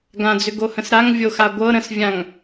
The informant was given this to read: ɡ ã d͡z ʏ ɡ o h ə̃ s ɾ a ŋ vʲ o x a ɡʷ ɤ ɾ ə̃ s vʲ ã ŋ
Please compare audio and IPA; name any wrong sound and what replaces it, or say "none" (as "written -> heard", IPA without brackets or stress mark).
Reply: none